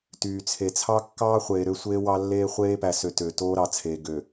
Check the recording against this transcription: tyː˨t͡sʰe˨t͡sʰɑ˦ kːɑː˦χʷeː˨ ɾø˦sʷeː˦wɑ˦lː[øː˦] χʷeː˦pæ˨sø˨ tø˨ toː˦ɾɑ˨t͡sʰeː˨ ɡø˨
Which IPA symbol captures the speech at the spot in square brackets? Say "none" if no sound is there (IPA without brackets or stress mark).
eː˦